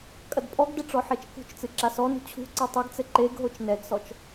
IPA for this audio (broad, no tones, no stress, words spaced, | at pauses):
kʼɐdpʼɔɡdɘ ʈ͡ʂɔħet͡ʃkṳt͡ʃt͡sɨ ǁasɔnṳ t͡ɕʰṳ ǀetˤɨɡt͡sɘ ǃeɡɦot͡ʃ nɛɡsɔt͡ʃ